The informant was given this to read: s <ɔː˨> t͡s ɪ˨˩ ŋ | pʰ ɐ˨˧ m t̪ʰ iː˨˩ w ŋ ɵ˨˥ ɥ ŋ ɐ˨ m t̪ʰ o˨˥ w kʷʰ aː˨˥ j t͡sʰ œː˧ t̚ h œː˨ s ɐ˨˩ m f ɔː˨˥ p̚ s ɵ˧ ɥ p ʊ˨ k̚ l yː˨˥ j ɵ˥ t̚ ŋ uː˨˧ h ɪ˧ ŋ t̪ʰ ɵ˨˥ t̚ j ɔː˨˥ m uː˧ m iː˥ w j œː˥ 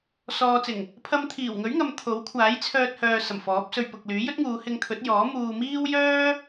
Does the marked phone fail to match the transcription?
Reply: no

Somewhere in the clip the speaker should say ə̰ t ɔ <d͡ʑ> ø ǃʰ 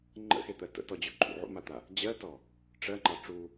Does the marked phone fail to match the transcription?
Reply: no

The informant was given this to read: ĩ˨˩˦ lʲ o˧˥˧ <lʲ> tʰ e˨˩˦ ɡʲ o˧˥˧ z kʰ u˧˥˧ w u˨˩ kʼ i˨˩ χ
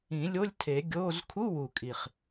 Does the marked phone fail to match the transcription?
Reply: no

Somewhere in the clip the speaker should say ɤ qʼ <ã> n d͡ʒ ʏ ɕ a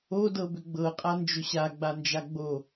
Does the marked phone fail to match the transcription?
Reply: yes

